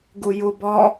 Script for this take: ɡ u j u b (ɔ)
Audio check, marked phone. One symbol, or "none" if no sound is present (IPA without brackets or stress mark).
ɔ